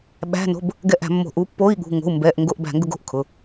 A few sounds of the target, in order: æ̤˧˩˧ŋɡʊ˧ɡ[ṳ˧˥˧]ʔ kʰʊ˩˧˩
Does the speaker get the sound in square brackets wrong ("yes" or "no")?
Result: yes